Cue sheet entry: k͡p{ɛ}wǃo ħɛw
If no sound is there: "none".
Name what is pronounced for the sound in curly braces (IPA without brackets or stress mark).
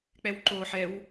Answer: ɛ